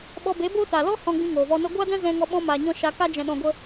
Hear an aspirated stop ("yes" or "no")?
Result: no